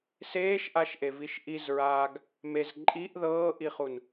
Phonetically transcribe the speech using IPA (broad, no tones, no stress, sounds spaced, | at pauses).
s eː ʃ ʔ a ʃ ʔ e v i ʃ ʔ i z ɹ aː ɡ | m e z ǃʼ i ʔ ð ɤː ʔ i χ u n